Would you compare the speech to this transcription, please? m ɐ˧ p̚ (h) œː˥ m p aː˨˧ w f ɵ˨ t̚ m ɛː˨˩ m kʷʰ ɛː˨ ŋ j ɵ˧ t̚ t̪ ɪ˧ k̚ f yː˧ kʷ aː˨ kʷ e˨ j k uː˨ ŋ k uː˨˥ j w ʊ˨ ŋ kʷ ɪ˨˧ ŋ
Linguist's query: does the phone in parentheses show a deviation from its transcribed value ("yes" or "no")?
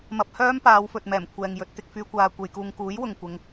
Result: no